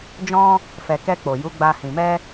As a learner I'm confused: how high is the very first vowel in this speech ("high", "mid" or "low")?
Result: mid